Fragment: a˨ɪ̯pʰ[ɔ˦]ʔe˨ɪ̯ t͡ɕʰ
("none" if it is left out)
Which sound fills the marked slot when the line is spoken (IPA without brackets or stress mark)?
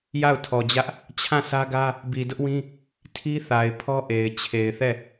ɔ˦